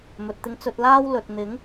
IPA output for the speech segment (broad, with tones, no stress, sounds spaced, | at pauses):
m ɵ˨ t̚ t̪ ɪ˧ ŋ t͡s ɵ˧ t̚ l aː˥ w l ɵ˨ t̚ n̪ ɪ˨˥ ŋ